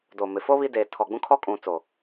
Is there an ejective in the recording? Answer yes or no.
yes